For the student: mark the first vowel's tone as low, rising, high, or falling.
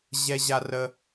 high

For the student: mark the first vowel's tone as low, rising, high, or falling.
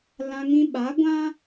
high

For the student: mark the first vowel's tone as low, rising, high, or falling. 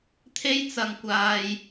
high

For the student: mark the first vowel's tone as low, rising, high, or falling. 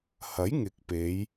rising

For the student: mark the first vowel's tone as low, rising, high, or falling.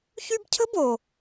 high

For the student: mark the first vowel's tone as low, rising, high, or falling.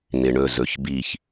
low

